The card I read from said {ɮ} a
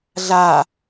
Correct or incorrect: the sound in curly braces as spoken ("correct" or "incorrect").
correct